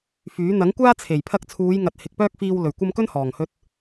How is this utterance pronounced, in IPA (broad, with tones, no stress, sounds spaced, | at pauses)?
f yː˨˥ n̪ ɐ˨˥ ŋ kʷ aː˥ t͡sʰ e˨˩ j pʰ ɐ˧ k̚ t͡sʰ uː˨˧ j ŋ ɐ˨ t̚ h ɪ˨ k̚ p œː˥ k̚ f iː˧ w l ɵ˨˩ ɥ kʷ ɐ˧ m k ɵ˥ n h ɔː˨˩ ŋ h ɵ˧ t̚